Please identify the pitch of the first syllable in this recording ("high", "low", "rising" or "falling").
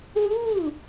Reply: falling